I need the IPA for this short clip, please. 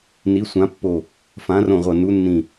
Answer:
n i˧˥ sʷ ã˧˥ pː o˦˨ | f ã˧˥ r õ˦˨ ʁʷ ʌ˦˨ n u˧˥ nː ĩ˦˨

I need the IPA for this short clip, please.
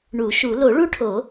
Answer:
ɳ u˨˩˦ ʃ u˨˩˦ l o˨˩˦ ɭ u˦˥ ʈʰ o˨˩˦

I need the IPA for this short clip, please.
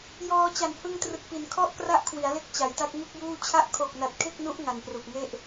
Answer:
j ɔː˧ t͡ɕ a˨˩ n h ɯ˧ ŋ t r ɯ˨˩ k̚ p i˩˦ n kʰ ɔ˥˩ ʔ k r a˥˩ ʔ kʰ w i˩˦ a̯ l e˦˥ k̚ t͡ɕ a˩˦ j t a˦˥ k̚ ŋ u˥˩ k̚ j uː˥˩ t͡ɕʰ a˦˥ ʔ kʰ o˨˩ k̚ n a˨˩ t̚ kʰ e˥˩ k̚ n u˦˥ ʔ ŋ a˨˩ n p r u˨˩ k̚ ŋ e˥˩ ʔ

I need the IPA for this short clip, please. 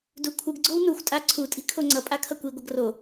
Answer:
d u kʷʰ ɯ ɡ ɡ͡ǀ o w n u xʷ tʼ a ǀʰ u tʼ i̤ kʰ o ŋ͡ǀ ʌ pʼ a kʰ ʌ kʷ i ɡʷ ʌ ɡ r o

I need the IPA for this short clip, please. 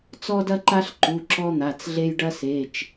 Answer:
t͡s ɔ˥ d ɐ˥ ǃ a˥ ɬ ǃ u˩˧˩ ǁ ɔ˥ n̪ a˩˧˩ t͡s ɮ e˥ j ɖ ɐ˥ s e˩˧˩ t͡ʃ

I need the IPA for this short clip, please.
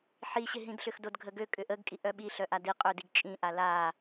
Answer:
ħ i ɕ ɪ ɦ ĩ d ɬ ʏ x d o d ɡʱ ə ɡ ø kʼ ʏ ʔ ə ɡ kʼ i ʔ œ ɓ i ɬ œ ʔ a d i qʼ ø d i ɡ t͡ʃʼ ĩ ʔ a l a

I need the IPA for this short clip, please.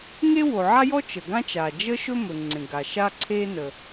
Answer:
ŋ e˥ w o˩ ʕ a˥ j ɔ˥ t͡ʃ ə˩ ɡ ã˥ t͡ʃ a˩ d͡ʒ ə˥ ʃ ɵ˥ m ɵ˩ ŋ͡ǀ ẽ˩ ɡ a˩ ʃ a˥ ǀʰ e˥ n ə˩

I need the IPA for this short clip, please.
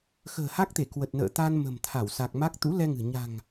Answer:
x ə̤ː˨˩ h a˦˥ k̚ t̪ e˧˩ k w ə˨˩ t̚ n ə̰ː˧˨ t̪ a˧ n m ə̤˨˩ m t̪ʰ a˧˩ w s a˨˩ k̚ m a˦˥ k̚ t̪ ṵ˧˥ l ɛ˧ ŋ ɨ̤˨˩ ɲ a̤˨˩ ŋ

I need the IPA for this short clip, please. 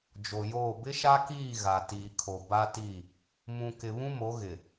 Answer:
d͡ʒ o˨ j oː˦˨ b ɪ˦ ʃ a˦ k iː˦˨ ɣ a˨ t iː˨ kʰ o˨ b a˦ t i˦˨ | m ũ˨ k ɪ˨ β ũ˦ m o˨˦ ɣ ɪ˨

